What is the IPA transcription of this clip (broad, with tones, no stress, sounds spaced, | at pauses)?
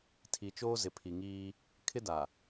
tʰ i˨ t͡ʃ oː˦ z ɪ˨ pʰ i˨ ŋ iː˦ | kʰ ɪ˦ d a˨